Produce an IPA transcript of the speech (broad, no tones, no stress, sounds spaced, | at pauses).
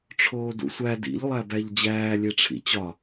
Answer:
ʈ͡ʂʰ oː d ṵ sʷ æ d ḭ ʎ lˠ æ b æ ʎ d͡ʑ æː lʲ e ʈ͡ʂʰ ḭ t͡ɕ ɒ